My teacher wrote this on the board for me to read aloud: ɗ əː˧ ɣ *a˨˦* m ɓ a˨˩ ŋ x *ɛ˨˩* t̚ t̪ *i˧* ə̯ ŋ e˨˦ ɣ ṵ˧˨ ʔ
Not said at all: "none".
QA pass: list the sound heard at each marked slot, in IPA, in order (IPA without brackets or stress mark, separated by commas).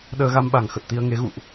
a˧, ə˨˩, i˧